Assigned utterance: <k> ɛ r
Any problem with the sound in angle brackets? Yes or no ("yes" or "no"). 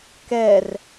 no